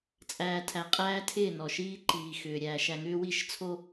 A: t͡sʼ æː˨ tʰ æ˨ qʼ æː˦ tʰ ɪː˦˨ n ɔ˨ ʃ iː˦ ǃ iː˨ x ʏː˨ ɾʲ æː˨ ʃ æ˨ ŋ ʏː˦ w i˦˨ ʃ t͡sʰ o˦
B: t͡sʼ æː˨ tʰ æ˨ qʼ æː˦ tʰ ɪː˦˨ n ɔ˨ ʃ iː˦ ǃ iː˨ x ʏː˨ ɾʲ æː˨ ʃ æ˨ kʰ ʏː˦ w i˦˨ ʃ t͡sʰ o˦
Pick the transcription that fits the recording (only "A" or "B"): A